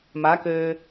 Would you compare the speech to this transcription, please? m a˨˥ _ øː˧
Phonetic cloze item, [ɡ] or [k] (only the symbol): k